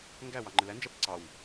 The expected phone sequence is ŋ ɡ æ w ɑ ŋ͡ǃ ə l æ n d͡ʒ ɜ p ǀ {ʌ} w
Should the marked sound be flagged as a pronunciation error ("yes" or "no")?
yes